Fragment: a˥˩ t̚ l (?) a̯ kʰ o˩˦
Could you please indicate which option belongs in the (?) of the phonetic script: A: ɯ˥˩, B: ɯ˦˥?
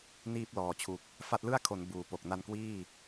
A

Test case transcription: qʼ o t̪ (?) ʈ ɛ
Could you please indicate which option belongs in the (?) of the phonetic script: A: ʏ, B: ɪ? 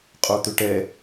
A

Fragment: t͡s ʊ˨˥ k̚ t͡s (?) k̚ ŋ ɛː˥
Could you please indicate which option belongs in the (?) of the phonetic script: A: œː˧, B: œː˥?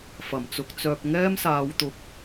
A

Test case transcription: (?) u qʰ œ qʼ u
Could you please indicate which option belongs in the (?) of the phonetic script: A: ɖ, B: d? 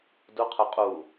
B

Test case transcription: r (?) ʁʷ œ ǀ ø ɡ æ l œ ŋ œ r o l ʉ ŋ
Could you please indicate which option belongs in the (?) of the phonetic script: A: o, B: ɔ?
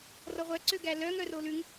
B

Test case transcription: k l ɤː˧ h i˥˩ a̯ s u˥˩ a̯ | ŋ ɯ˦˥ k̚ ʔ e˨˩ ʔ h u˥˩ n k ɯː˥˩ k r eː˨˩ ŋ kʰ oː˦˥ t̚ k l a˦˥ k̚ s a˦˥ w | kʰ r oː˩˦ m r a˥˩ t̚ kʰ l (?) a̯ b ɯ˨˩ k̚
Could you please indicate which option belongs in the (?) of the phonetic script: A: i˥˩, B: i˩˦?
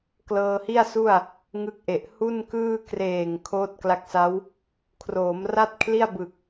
A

